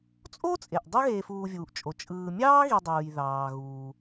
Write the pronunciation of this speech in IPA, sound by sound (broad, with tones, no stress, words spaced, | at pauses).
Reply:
t͡sʼo˥t͡sʼe˩ʔ dˤɯ˦ɣeː˨fuː˨vʲuː˩ʔ t͡ʃʼo˩ t͡ʃʼɯː˨ mʲɑː˥ɣi˨dˤuː˩j ðɑː˩ɣuː˩